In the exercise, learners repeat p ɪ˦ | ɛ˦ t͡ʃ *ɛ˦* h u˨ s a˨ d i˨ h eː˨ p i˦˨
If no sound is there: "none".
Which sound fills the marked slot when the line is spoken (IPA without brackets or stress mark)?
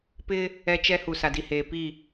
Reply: ɛ˦